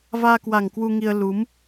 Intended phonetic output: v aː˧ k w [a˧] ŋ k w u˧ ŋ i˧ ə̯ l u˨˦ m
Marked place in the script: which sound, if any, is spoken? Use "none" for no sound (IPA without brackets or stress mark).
a˨˩